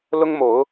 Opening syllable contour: high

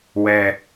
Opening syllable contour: low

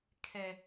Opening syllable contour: low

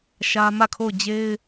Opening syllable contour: high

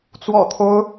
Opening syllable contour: low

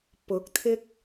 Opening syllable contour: rising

